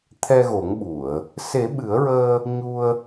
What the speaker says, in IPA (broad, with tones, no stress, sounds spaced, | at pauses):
t̪ʰ ɛ˧ ɣ o˨˩˦ ŋ ɓ u˨˩˨ ə̯ | s e˨˩˦ ɓ ɨ˨˩˦ ə̯ ɹ əː˧ | ɲ u˧ ə̯